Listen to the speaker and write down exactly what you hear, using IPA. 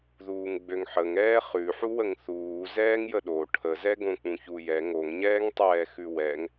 ð uː ŋ ɡ͡b ø ŋ ħ ə ŋ ɛː χ ʉ ħ u w ə ŋ θ uː z ɛː ŋ j ə ɗ o ʈʰ ə z ɛ ɡ õ k͡p ũ ç u j ɛ ŋ o ŋ ɲ ɛː ŋ tˤ ɛː x ʉ w ɛ ŋ

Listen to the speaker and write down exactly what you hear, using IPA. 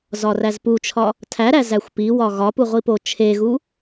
z ɒ r æ z p u t͡ʃʰ ɒ | tʰ æ ɾ æ z æ xʷ p i w ɒ ɣ ɒ p u ʁʷ i p o t͡ʃʰ e ɣ u

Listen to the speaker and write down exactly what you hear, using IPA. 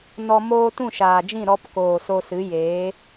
n ɔ˧ m oː˦ t ũ˦˨ ʃ aː˨ d͡ʒ ĩ˦˨ ɾ ɔ˧ p k oː˨ s o˧ s ɨ˨˦ j eː˨˦

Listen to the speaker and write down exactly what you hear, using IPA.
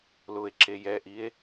l ʊ e̯ ǁ e j ɛ ʔ i e̯

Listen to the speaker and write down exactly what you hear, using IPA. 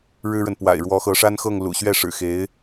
ɻ ɻ̩˥ ɻ ə˨ n p w a̰˨˩ ɪ̯ ɻ w ɔ˧˥ x ɤ˧˥ ʂ a˥ n x ɤ˥˩ ŋ l ṵ˨˩ ɕ ɥ ɛ˥˩ ʂ ɻ̩˨˩ x e˧˥ ɪ̯

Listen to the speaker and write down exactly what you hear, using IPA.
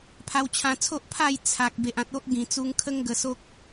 pʰ a˧ w t͡ɕʰ ã˧ t͡sʰ o˦ ʔ pʰ a˥˧ j t͡sʰ a˨ k̚ b e˨ ʔ ã˨ t̚ o˦ ʔ ɡ ĩ˨˩ t͡s u˧ ŋ kʰ ə˦ ŋ ɡ ə˧ s o˦ k̚

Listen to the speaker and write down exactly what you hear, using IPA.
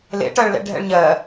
l ḛ ʈ ɜ ɭ l ɛ̰ ɖʱ ɛ̰ ɭ ɲ ɜ

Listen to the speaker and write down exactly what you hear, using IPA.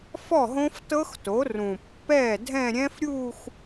f ɔ˥˩ ɦ õ˦˥ f t ɤ˦˥ x t o˩˥ r ũ˨˩ pː ɛː˥˩ dʱ ɛ̃˥˧ ɾʲ ɛ̃˦˥ f ɾʲ uː˥˧ x

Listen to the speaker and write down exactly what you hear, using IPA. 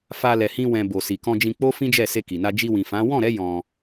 f a˧ l ɛ˨ h ĩ˧ w ɛ̃˨ b o˨ s i˨ k ɔ̃˧ d͡ʒ ĩ˧ k͡p o˦ f ĩ˦ d͡ʒ ɛ˦˨ s e˧ k i˨ n a˧ d͡ʒ i˧ w ĩ˨ f ã˨˦ w ɔ̃˦˨ ɾ ɛ˨˦ j ɔ̃˧

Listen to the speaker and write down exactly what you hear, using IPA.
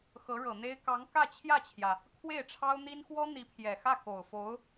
x ɤ˧˥ ɻ ɤ˨˩ n̪ e˥ ɪ̯ k ɑ˧˥ ŋ k ä˥˧ t͡ɕʰ j ä˥˩ t͡ɕʰ j ä˩ | kʰ w e˥˩ ɪ̯ ʈ͡ʂʰ ɑ˥ ʊ̯ n̪ i˥ n x w ɔ˥ n̪ i˧˥ pʰ j ɛ˨˩ x ä˥˩ k o˨˩ ʊ̯ f o˧˥ ʊ̯

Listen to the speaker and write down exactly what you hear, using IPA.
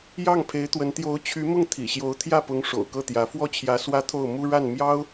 j ɑ˥˩ ŋ pʰ e˧˥ ɪ̯ t̪ w ə˧˥ n t̪ j o˧˥ ʊ̯ t͡ɕʰ y˧˥ m ʊ˥˩ ŋ t̪ʰ ḭ˨˩ ɕ j o˧˥ ʊ̯ t̪ʰ j ä˥˩ p ʊ˧˥ ŋ ʂ o̰˨˩ ʊ̯ k ɤ˥˩ t̪ j ä˧˥ f w ɔ˥˩ t͡ɕʰ j ä˧˥ s w ä˥ t̪ʰ o˥˩ ʊ̯ m u˥ ɻ a˥˩ n m j ɑ˥ ʊ̯

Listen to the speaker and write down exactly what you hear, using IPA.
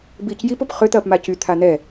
b iː c j i p ʊ p χ ʏ t̪ ɐː p m a c y t̪ʰ a n̪ ɛ

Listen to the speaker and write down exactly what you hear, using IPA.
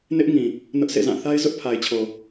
n ɪ˦ ʔ ŋ ĩ˨ | n ʊ˦ ʔ sʰ ḛ˦˨ z ã˦˨ θ a˦ ɪ̯ z ʊ˦ ʔ pʰ a˨ ɪ̯ t͡ɕʰ o˨

